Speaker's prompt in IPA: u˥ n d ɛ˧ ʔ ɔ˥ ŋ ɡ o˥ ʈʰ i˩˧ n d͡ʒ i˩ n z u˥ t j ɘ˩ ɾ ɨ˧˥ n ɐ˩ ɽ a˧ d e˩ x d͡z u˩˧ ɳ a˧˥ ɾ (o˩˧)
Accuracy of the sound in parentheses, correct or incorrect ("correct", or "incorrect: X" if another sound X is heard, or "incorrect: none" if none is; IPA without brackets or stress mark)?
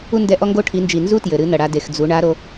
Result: correct